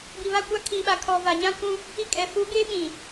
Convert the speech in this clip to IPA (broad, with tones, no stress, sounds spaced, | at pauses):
b i˨ β a˦˨ kʷ a˦ kʰ i˨ ɓ a˨ kʰ ɔ˨ v a˨ ɲ ã˦ kʷ ũ˦ | i˦ kʼ ɛ˨ f u˨˦ ɡ e˦ ɓ ĩ˨